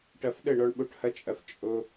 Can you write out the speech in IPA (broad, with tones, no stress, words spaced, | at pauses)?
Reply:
ʈɐ˧fɗə˦˨ ɳɔ˦ɳɓo˦ʈhɐ˦t͡ʃʼɐ˧f t͡ʃʼo˧